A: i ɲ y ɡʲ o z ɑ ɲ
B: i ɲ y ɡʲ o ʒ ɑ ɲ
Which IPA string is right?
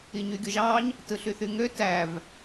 B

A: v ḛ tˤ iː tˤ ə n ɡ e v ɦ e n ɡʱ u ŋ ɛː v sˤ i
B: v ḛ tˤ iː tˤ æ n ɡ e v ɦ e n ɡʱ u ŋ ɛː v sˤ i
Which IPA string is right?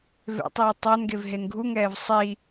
B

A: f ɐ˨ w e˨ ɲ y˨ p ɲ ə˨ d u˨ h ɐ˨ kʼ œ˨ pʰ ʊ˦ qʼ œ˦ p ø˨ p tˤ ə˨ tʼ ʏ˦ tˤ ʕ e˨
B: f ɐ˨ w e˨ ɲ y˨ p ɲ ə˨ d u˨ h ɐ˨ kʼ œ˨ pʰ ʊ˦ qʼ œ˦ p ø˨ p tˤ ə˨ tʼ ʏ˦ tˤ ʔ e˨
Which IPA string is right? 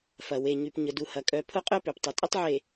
A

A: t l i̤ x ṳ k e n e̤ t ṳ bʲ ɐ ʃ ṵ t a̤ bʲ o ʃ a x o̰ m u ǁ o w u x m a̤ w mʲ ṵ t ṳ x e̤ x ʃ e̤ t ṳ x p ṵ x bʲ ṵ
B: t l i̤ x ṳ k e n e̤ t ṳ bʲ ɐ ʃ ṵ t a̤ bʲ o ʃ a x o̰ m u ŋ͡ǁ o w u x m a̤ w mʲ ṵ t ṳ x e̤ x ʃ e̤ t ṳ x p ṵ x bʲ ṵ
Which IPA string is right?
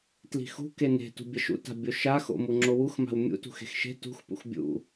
B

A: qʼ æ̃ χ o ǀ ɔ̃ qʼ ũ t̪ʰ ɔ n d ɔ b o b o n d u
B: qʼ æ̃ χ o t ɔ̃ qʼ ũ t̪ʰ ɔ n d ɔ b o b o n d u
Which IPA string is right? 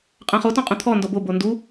B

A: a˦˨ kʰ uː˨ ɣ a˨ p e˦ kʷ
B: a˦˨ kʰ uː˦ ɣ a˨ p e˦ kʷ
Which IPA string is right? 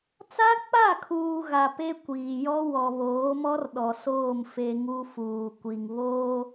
A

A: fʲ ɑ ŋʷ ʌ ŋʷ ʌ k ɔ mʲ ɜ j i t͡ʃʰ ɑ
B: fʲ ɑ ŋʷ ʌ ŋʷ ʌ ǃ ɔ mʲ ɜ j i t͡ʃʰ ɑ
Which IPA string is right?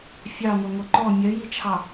B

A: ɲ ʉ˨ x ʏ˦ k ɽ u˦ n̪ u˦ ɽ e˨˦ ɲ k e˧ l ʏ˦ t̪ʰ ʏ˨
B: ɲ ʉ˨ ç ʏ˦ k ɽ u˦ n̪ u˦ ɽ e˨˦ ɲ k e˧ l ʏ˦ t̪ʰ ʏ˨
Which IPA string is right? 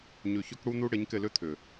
B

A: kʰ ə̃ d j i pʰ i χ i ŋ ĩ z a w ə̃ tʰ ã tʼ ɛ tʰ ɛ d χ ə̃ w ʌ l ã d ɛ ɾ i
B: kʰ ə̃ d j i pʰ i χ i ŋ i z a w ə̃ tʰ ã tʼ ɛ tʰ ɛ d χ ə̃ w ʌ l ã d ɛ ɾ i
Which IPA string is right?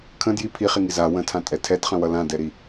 B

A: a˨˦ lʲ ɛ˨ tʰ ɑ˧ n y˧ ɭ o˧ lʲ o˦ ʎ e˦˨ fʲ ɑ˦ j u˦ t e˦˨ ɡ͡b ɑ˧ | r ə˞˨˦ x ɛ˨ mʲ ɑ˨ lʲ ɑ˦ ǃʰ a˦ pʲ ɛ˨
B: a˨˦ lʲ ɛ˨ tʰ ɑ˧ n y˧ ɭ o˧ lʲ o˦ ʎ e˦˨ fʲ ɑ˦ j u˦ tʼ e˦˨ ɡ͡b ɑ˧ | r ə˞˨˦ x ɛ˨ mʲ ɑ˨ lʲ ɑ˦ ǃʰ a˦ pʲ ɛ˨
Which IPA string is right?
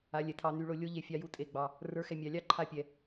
B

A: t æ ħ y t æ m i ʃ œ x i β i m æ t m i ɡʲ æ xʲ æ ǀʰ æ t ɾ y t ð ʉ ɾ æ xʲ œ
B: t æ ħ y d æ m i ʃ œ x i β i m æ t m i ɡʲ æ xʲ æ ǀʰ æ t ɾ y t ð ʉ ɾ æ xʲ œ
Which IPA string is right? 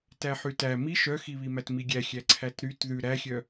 A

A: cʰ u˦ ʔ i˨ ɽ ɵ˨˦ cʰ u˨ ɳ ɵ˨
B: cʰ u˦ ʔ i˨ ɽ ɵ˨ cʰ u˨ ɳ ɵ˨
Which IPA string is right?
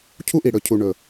B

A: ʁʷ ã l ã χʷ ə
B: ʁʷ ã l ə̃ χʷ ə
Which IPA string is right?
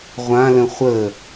B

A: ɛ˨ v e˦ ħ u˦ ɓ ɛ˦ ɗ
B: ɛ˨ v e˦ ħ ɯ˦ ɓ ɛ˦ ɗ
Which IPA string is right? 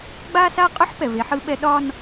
B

